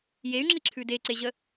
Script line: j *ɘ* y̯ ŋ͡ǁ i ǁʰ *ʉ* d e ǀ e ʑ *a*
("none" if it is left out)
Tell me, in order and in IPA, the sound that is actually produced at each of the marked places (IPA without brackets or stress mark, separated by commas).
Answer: e, ʉ, ə